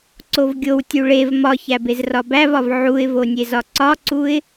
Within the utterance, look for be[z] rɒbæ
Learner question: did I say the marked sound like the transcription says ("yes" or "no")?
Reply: yes